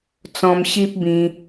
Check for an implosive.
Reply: absent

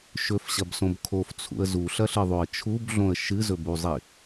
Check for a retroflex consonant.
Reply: absent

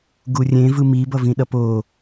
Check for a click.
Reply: absent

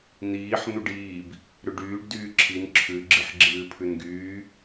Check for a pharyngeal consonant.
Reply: present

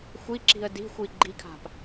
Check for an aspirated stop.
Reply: present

